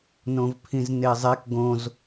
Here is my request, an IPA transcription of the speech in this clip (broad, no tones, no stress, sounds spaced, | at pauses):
n õ v pʰ ĩ z n e zˤ e k ɡ õ z